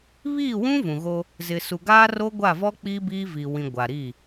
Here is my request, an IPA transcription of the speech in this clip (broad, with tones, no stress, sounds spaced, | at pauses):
β iː˦˨ w ũ˦ v ũ˨ ɣ o˦ | z ɪ˨ s u˨ ɡ aː˦ r o˦ ɡʷ a˦˨ v ɔ˦ k͡p iː˦ b iː˦ v i˨ w ĩ˨ ɡʷ a˨ ɾ i˦˨